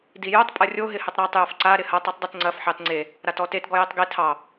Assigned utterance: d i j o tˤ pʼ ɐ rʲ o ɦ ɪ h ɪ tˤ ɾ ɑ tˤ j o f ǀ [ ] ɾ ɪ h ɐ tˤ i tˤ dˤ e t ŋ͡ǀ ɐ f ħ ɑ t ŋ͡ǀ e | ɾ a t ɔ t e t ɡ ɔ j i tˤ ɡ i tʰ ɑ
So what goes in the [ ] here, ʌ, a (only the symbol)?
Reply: a